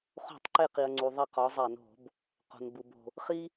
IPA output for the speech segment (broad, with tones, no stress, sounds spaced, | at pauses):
χ o̤˧˩˧ tˤ ǃ e˧˩ q i˩ ɐ̯ ŋ͡ǀ u˩ ðˤ æ˧˩ q ɒ˩˧ zˤ æ˧˩˧ n o̤˧˩˧ b | q o̤˩ n b u˩ b o̤˩ | χ i˦